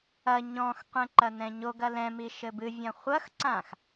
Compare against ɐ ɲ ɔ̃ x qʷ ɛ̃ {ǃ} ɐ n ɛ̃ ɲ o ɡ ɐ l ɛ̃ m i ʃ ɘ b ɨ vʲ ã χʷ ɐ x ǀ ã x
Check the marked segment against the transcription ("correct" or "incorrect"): correct